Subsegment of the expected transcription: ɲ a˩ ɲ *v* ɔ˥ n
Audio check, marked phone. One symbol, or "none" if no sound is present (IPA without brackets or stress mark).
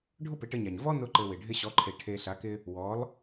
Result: v